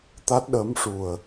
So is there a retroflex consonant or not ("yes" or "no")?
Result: yes